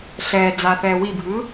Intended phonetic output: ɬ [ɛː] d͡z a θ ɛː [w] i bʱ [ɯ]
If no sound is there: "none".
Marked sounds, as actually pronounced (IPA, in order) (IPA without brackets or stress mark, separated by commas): ɛː, w, ɯ